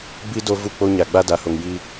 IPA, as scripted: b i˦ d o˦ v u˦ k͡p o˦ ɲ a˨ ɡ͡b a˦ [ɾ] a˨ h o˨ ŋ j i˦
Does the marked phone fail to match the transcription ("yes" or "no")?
yes